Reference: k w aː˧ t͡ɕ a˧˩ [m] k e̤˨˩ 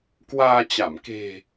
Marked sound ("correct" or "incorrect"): correct